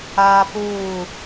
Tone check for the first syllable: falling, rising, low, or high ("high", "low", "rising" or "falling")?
high